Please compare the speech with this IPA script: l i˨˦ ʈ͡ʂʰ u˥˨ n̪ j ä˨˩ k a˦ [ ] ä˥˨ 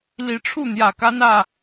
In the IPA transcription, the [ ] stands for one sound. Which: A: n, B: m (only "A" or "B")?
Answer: A